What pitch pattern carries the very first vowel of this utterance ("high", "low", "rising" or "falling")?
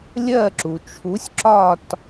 falling